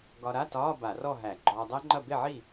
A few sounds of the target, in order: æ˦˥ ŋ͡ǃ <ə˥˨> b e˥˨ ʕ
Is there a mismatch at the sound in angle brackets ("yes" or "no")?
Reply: yes